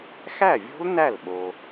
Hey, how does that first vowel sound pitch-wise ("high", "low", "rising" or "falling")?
falling